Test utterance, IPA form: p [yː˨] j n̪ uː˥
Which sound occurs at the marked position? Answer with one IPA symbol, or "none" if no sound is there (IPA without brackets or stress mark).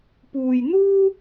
uː˨